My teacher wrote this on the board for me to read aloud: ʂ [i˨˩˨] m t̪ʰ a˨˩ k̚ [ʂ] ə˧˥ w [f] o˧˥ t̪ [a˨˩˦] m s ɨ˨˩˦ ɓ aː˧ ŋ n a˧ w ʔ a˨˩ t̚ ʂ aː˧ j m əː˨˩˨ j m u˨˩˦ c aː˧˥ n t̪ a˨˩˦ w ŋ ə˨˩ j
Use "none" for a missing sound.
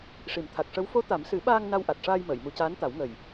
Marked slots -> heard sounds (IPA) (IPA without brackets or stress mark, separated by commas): i˨˩˨, ʂ, f, a˨˩˦